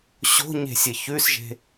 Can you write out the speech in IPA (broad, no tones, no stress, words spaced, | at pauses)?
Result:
ɕo̤ɲe̤sʲɘ çʉsʒe̤